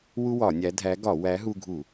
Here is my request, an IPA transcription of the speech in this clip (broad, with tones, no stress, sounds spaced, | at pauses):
w u˥ w ɒ˧˩˧ nʲ æ˨˥ dʱ æ˨˥ ɡ ɒ˧˩˧ w æ˨˥ ɦ u˧ ɡʱ u˧˩˧